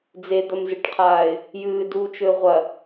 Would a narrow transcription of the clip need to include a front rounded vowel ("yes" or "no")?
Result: no